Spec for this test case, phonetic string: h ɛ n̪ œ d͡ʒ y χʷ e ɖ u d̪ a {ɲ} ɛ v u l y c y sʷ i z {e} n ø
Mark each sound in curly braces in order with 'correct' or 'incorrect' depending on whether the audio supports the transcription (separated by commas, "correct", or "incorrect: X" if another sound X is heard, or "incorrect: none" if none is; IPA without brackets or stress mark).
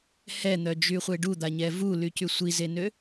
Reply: correct, correct